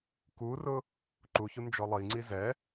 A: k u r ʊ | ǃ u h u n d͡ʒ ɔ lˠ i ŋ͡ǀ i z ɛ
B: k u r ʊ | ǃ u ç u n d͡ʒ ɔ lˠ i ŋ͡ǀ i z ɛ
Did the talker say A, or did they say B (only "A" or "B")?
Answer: B